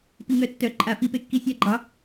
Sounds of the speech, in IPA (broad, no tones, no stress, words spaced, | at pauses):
piŋœtːœ ǃʼa fipekːi sʲaɡ͡ǃɑ